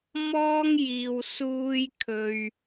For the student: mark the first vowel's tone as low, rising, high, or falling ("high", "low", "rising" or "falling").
high